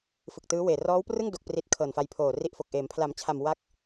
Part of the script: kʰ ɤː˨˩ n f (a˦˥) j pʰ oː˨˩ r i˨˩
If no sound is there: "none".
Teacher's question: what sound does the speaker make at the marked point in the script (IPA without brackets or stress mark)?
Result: a˧